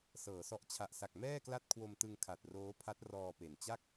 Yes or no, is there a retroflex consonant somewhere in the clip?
no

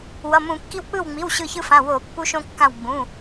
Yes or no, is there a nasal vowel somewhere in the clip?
yes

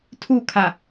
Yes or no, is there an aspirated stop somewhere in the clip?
yes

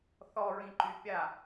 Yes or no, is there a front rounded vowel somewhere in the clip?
yes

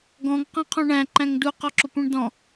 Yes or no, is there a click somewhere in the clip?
yes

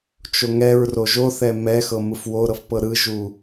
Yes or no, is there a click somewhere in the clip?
no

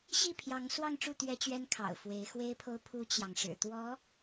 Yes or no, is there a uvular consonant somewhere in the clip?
no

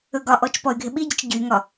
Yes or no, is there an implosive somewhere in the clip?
yes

